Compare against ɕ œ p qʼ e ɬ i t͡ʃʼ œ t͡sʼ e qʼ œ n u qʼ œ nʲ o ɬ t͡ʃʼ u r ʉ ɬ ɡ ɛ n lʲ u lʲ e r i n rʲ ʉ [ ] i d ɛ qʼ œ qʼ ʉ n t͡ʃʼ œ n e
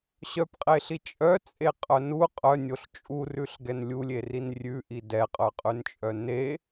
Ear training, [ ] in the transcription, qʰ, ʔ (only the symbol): ʔ